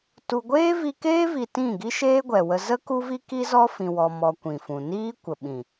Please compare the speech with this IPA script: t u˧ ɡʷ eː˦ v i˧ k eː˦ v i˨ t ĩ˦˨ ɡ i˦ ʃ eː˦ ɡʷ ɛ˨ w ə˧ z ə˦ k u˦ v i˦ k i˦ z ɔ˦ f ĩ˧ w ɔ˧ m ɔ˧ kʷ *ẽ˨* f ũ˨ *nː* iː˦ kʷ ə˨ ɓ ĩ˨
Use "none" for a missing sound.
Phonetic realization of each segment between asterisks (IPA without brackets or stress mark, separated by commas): ĩ˨, n